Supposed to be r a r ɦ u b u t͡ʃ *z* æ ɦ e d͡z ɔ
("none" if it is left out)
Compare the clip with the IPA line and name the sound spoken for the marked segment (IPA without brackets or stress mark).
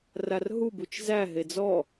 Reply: z